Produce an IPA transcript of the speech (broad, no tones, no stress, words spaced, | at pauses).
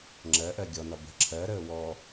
ŋ͡ǁɜʔɜ ɡʲɔnɒ bə̤ ǁʰɜɾəː wɔ